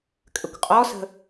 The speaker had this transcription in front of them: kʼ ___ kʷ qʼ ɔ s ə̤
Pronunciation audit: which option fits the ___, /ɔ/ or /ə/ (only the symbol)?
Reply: ə